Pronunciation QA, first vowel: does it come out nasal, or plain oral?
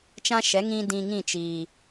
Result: nasal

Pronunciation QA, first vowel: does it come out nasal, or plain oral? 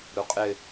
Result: oral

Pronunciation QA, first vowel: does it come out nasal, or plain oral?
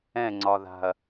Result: nasal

